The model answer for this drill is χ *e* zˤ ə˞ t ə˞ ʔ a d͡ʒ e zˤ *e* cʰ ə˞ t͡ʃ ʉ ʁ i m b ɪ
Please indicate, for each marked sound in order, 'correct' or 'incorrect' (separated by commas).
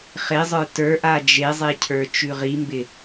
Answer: correct, correct